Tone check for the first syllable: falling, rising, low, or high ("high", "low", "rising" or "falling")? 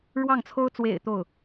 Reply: falling